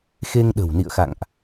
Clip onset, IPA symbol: x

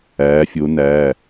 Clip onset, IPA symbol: æː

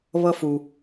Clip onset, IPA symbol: β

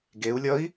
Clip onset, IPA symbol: ɡ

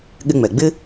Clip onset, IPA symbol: ɠ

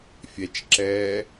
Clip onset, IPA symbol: fʲ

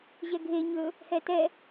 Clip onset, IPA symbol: ʑ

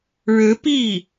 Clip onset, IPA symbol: ɻ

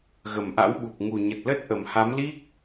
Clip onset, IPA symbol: ɣ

